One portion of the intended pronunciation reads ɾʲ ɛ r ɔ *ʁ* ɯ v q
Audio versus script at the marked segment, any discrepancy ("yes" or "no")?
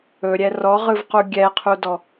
no